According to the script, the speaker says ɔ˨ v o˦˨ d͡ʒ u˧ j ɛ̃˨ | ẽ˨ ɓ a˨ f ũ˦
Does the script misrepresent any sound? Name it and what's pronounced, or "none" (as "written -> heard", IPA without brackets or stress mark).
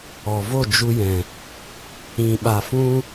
ẽ˨ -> ĩ˨